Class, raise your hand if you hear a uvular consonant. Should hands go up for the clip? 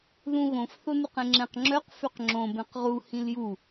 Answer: yes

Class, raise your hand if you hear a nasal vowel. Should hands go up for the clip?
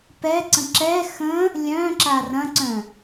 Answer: yes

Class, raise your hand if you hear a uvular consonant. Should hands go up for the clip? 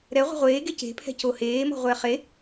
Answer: yes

